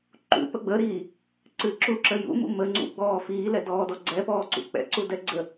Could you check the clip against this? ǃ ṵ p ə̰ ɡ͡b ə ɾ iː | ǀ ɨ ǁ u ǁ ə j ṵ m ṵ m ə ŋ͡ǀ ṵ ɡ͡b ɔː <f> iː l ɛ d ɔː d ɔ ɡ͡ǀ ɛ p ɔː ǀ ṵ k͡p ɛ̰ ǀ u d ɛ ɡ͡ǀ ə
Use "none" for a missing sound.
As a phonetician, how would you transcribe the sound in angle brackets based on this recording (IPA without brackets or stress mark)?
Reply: f